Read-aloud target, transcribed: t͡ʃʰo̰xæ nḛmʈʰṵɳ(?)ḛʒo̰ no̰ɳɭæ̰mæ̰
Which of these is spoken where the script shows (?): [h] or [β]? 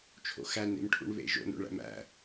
β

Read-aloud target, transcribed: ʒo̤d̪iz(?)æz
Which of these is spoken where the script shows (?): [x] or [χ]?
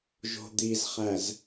χ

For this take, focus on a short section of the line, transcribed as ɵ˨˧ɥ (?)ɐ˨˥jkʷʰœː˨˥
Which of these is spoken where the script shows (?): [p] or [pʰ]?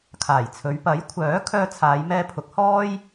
p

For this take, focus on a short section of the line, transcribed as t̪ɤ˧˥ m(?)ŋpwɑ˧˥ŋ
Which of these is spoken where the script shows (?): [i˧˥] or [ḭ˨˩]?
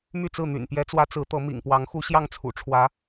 ḭ˨˩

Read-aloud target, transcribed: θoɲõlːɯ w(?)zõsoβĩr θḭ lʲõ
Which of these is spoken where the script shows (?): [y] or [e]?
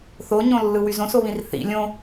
y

